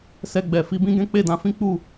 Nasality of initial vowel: oral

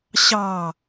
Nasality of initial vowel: oral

